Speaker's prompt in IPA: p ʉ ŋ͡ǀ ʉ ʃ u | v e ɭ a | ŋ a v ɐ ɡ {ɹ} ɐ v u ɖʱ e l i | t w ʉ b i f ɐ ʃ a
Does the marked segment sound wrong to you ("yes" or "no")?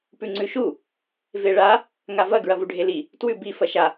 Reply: no